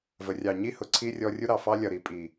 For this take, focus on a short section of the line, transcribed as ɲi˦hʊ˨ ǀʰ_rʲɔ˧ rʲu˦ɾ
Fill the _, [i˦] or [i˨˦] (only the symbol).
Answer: i˦